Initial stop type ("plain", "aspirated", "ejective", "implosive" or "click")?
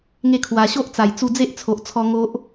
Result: aspirated